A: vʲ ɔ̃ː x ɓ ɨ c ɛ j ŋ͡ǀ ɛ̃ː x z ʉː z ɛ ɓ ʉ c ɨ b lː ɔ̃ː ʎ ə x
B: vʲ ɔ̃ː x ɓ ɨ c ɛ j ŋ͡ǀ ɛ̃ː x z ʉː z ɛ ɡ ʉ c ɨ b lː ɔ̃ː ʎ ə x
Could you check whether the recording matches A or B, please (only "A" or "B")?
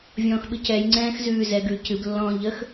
B